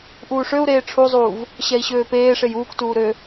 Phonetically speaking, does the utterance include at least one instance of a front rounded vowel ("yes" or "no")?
yes